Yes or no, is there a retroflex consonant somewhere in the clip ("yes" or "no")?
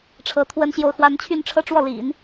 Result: yes